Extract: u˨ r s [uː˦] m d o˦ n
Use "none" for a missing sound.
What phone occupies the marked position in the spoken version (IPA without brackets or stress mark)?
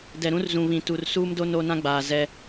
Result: uː˦